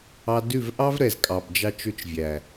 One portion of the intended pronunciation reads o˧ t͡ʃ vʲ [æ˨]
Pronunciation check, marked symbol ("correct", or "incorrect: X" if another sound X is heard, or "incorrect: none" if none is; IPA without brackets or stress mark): correct